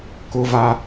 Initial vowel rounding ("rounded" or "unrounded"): rounded